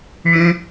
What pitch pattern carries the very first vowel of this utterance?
high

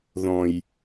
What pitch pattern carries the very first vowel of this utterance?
low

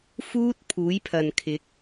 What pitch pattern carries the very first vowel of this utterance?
high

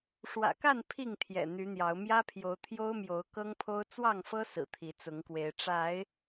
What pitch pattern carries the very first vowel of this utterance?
low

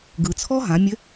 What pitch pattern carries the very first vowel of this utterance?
low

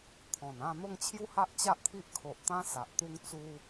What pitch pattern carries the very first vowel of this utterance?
low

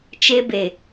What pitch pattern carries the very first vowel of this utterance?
high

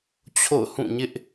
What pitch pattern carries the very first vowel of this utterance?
falling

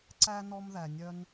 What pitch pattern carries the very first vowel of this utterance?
high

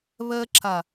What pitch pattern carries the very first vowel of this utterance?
high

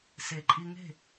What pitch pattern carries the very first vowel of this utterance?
low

